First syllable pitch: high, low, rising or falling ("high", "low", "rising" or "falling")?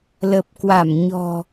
low